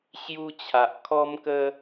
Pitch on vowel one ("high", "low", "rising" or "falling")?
high